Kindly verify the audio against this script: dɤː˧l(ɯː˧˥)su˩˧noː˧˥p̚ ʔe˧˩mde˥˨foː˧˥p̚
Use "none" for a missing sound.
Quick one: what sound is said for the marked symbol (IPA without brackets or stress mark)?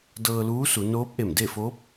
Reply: uː˧˥